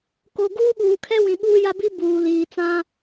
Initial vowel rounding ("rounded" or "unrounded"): rounded